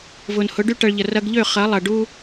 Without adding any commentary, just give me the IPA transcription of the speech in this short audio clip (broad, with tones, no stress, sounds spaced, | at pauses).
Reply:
v ʊ˨ n h ʊ˨˦ ɖ y˦ ʈ ɐ˧ ɭ ʎ ə˨ r ɐ˧ ɡ ʎ ø˦˨ χ ɐ˨˦ lˠ ɐ˨ ɖ u˦